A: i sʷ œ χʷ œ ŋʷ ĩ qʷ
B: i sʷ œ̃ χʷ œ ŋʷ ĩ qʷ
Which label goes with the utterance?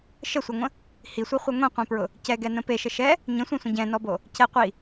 A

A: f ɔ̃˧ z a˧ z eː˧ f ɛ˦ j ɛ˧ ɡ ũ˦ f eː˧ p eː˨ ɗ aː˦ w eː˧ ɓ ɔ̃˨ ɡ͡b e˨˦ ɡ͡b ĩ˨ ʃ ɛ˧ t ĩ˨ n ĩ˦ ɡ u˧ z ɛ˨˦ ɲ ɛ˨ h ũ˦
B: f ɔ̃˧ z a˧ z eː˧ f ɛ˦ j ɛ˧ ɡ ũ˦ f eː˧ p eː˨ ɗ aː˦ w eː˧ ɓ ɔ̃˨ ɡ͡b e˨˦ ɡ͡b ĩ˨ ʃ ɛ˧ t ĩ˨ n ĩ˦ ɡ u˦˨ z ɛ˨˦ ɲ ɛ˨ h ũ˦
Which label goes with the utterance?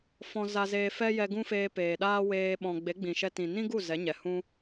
B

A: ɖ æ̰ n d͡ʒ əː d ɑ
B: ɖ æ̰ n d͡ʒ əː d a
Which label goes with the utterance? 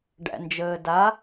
B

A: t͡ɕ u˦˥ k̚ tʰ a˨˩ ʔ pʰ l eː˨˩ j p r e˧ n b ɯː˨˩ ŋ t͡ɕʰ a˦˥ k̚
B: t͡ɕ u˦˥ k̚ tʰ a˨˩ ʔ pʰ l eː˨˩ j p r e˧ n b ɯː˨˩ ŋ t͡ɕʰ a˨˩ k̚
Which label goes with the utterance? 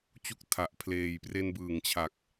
B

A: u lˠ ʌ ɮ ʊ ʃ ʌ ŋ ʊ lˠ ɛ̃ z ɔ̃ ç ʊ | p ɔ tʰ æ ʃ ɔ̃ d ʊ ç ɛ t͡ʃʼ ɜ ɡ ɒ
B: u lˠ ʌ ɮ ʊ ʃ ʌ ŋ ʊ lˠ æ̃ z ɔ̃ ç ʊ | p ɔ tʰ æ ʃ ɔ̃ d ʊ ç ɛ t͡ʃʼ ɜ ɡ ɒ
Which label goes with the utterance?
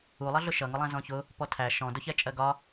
B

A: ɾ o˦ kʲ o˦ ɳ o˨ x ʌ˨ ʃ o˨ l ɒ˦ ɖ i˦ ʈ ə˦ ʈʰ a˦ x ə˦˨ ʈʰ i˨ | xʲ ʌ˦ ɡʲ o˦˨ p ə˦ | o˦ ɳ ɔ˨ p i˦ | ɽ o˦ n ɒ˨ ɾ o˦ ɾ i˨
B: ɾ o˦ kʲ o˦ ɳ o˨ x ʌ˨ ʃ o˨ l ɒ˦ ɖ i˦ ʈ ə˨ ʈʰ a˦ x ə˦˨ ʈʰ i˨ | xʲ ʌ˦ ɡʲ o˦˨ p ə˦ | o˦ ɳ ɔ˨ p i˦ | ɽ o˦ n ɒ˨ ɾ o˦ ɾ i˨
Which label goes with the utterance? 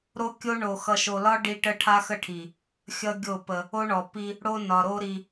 A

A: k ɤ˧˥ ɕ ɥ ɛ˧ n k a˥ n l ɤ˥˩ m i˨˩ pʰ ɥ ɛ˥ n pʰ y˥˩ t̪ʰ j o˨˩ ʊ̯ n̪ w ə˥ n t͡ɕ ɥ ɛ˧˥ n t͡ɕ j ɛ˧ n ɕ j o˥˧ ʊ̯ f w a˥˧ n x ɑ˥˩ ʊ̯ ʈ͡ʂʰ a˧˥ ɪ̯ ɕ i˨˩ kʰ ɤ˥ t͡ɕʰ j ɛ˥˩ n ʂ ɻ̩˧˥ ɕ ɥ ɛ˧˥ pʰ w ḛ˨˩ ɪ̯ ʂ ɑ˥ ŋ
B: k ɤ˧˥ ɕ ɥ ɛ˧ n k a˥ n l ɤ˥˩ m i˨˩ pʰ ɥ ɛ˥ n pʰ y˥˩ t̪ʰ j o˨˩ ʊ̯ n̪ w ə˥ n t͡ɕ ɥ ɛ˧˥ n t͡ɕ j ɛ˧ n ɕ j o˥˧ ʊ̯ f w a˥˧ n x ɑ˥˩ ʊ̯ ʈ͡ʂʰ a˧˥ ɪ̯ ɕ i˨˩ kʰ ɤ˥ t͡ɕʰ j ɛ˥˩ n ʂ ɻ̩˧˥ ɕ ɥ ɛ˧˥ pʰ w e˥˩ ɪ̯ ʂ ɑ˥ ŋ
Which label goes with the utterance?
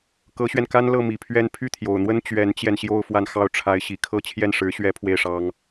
B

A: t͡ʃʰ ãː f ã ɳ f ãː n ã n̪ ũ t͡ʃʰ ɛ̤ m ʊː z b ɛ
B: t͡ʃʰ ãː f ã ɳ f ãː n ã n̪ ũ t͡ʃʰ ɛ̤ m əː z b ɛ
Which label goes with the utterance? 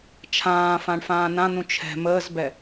B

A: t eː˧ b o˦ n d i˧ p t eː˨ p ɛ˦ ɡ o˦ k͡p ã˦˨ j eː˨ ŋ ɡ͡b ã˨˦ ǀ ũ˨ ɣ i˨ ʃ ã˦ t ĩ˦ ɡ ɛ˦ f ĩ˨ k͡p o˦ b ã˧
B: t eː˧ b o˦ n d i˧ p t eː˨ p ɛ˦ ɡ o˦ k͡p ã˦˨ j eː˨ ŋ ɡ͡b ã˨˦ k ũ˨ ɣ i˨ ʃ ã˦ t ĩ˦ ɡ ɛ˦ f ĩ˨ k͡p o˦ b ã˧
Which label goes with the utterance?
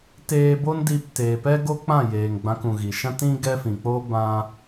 B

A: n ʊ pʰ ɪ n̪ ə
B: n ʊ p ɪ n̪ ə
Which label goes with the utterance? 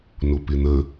B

